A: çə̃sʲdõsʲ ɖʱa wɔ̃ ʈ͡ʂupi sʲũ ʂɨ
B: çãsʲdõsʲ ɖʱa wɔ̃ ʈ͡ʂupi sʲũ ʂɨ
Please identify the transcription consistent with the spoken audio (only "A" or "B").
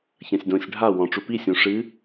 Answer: B